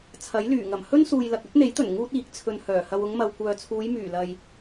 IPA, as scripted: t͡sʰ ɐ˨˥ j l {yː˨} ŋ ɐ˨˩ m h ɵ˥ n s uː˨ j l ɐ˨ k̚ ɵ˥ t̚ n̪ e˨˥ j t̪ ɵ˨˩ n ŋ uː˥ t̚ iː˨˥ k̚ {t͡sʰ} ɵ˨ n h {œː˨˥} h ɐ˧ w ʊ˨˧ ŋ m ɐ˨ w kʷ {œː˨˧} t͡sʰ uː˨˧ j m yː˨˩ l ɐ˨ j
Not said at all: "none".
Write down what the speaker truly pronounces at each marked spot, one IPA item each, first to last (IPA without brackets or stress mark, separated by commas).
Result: yː˨˩, t͡sʰ, œː˨˩, œː˨